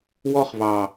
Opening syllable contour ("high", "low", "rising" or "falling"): high